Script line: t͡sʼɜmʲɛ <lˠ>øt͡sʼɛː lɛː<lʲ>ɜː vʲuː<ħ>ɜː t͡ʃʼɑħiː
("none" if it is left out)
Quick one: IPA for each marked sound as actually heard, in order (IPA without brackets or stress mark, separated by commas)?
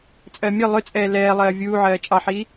lˠ, lˠ, ʕ